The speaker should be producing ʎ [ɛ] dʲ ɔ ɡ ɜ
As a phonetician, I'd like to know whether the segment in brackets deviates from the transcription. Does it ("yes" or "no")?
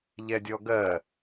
no